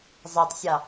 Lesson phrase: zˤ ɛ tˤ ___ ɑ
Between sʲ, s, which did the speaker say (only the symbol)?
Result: sʲ